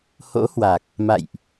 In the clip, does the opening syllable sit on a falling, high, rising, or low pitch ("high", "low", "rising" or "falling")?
rising